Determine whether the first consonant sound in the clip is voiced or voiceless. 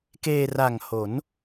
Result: voiceless